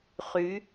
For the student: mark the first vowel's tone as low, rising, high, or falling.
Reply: rising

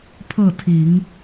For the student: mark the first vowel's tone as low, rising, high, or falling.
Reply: falling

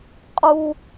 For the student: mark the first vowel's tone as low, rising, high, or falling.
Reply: high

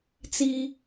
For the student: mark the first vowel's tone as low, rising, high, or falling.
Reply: high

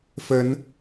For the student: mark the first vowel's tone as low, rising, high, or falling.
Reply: rising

